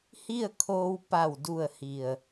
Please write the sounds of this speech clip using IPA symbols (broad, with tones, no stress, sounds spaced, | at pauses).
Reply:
h i˥˨ ə̯ kʰ oː˧ w p a˧˩ w d u˧˩ ə̯ h i˧˩ ə̯